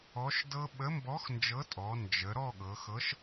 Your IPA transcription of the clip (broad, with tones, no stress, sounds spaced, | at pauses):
ɔ˨˥ ʃ d ɤ˦˥ ɓ ə˨˥ m b ɔ˨˥ x n d͡ʒ ɤ˨˥ tʼ ɔ˩˧ n d͡ʒ ə˩˧ ɾ ɔ˥˨ ɠ ɤ˩˧ x ɤ˨˥ ʃ